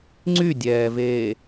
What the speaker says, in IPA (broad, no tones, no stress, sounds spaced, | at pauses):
ŋ͡ǀ y dʲ ɛː v eː